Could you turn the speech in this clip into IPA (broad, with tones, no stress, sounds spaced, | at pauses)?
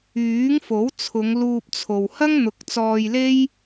yː˨˥ ŋ f o˨˥ w t͡sʰ ʊ˨˧ ŋ l uː˧ p̚ t͡sʰ o˨ w h ɐ˥ ŋ n̪ ʊ˨˥ k̚ t͡s ɔː˧ j l e˥ j